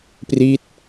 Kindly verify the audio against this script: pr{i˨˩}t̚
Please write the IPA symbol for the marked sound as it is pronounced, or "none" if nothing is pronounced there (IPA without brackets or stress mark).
i˦˥